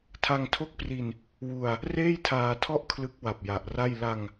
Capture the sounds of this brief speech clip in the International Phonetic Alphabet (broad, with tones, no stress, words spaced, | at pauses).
tʰa˧ŋtʰo˦˥k̚pri˧n | wu˧a̯ | reː˥˩jtʰaː˧tʰɔ˥˩ʔ kʰlɯ˦˥k̚ wa˨˩p̚ ja˨˩ʔra˥˩j la˧ŋ